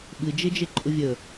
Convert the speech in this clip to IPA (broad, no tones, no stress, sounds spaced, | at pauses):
ɓ ɨ d͡ʒ e d͡ʒ e ǃʼ ʊ vʲ ə